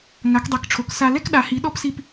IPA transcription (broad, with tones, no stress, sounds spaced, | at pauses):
ŋ a˨˦ k dˤ e˨˦ k ʈ͡ʂʰ o˨˦ k s a˦ l ɛ˦ k ɗ a˨˦ h i˨˦ ɗ ɔ˦ p s i˦ p